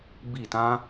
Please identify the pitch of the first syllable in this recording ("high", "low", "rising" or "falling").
falling